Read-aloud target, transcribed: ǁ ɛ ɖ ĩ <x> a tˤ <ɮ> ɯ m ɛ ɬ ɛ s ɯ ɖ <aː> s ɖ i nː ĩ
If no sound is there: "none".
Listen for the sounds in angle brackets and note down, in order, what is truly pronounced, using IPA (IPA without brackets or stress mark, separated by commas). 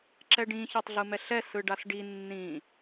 ç, ɮ, a